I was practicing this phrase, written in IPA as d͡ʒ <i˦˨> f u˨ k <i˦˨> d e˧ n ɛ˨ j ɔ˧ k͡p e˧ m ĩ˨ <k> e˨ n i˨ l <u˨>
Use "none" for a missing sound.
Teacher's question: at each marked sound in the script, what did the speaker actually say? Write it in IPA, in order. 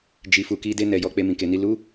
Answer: i˨, i˧, k, u˨˦

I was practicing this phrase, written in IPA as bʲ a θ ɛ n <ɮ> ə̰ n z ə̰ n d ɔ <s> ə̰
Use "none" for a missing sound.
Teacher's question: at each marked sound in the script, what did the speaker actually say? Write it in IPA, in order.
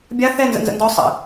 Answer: z, sˤ

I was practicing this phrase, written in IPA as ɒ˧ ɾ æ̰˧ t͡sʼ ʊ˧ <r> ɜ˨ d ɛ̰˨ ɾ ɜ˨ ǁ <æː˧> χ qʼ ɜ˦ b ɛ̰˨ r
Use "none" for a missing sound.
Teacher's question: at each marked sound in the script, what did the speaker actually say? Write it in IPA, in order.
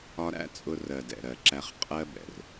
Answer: r, æ˧

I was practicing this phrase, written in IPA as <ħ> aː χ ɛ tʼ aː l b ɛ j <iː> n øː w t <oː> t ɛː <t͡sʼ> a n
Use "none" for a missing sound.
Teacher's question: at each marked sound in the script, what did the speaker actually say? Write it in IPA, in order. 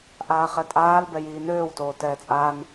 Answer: ʔ, iː, oː, t͡sʼ

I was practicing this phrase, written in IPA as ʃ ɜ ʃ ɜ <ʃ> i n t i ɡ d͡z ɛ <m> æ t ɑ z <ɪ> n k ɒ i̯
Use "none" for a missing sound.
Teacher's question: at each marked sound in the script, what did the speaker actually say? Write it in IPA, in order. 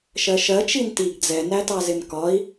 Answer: t͡ʃ, n, ɪ

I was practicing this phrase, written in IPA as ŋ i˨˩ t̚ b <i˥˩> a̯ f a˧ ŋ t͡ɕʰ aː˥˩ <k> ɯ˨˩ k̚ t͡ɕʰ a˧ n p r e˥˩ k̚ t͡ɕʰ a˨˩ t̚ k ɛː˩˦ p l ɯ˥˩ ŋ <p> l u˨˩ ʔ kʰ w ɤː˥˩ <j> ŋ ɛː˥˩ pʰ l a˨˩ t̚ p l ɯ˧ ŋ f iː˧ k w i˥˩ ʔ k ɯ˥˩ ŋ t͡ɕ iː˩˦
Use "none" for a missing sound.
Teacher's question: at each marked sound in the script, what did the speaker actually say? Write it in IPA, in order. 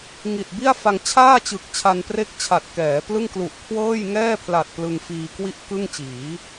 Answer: i˥˩, t͡ɕ, k, j

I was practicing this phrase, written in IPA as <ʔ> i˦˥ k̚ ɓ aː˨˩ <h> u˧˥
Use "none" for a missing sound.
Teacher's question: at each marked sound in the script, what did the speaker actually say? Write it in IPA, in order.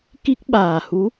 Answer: k, h

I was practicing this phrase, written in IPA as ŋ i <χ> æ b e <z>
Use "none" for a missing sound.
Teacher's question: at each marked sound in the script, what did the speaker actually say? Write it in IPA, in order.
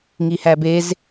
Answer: h, z

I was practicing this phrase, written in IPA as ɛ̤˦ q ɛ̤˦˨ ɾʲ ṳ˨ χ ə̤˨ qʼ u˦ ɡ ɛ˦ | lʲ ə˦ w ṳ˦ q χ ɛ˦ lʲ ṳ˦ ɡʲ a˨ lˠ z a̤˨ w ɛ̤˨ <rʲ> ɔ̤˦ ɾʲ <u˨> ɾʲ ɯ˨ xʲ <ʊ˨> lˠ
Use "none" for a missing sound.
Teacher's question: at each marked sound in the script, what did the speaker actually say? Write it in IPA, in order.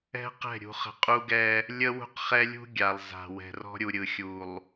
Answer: r, u˨, u˨

